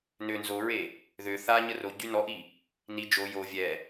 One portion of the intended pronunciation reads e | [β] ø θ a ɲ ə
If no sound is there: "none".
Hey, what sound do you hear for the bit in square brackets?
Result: ð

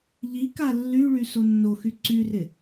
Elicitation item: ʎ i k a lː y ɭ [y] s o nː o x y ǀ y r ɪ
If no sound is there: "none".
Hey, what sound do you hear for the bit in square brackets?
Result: y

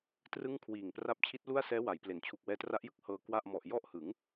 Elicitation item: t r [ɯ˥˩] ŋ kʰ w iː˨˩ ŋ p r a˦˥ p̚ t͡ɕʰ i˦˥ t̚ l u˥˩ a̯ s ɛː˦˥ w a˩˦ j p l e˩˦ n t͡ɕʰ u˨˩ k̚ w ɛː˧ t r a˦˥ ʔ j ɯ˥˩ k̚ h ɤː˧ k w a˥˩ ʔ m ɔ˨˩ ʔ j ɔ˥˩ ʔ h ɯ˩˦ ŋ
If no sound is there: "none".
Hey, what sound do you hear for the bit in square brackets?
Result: ɯ˥˩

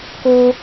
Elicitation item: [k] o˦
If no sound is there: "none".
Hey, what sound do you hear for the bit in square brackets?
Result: k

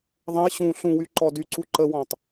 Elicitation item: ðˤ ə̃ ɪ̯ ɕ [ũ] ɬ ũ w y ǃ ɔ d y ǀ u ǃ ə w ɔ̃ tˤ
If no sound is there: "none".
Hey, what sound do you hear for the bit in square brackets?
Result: ũ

